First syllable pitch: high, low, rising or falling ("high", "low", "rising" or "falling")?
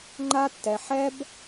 high